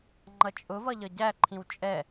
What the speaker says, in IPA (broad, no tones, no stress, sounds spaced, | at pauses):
ŋ͡ǃ ʌ t͡ʃʼ ʊ v ʌ ʎ ʌ ɟ æ ǃʰ ĩ w t͡ʃʼ ɛ